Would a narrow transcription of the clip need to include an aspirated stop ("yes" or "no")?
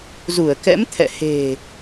yes